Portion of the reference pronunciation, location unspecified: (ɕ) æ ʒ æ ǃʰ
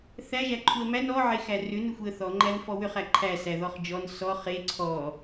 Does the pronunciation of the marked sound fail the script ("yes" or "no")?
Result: yes